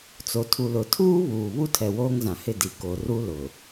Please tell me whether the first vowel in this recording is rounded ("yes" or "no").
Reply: yes